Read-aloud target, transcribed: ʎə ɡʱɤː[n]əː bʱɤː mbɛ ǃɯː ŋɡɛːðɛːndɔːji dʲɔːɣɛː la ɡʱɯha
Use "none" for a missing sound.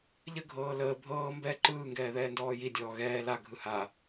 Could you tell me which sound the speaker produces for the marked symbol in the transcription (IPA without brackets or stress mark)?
l